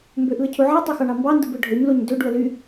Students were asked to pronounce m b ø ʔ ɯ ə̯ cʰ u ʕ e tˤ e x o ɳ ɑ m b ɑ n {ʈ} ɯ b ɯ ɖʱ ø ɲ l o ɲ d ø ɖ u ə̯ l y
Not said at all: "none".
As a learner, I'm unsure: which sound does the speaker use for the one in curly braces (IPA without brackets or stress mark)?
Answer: d